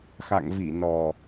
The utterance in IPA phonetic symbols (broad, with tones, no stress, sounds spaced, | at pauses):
x a̰˧˨ ŋ v i˧˩ n ɔ˨˩